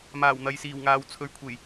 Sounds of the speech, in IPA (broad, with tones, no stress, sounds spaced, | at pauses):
m aː˨˩ w n̪ ɐ˨ j s iː˨˩ w ŋ aː˨ w t͡sʰ ɵ˨˧ ɥ kʷʰ e˨˩ j